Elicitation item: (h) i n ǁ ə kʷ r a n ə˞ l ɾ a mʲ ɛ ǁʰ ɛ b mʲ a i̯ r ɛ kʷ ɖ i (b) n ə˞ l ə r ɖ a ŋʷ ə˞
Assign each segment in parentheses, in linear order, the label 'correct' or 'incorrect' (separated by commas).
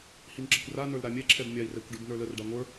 correct, correct